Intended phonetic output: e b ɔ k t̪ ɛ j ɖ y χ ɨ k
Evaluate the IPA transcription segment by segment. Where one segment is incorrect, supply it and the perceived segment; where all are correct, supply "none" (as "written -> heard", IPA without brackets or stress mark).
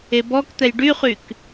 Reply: ɨ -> y